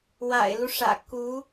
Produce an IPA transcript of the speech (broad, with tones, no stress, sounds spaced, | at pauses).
w a̰˨˩ ɪ̯ l u˦ ʂ ä̰˨˩ k u˧˥